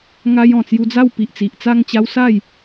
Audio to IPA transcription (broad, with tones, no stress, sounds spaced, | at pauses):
ŋ a˧ j ɔ̃˨˩ t͡s j u˧ d͡z a˥˧ w p i˨ ʔ t͡s i˨ ʔ t͡s a˥˧ ŋ t͡ɕ a˦ w s a˥˧ j